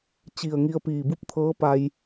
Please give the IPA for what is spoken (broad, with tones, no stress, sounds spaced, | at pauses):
t͡ɕ i˧˩ ə̯ ŋ i˧ ə̯ p iː˧˩ b u˥˨ p̚ t̪ʰ ɤː˧˥ p a˧ j